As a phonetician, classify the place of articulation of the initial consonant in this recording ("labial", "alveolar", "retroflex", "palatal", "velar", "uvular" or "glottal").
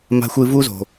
labial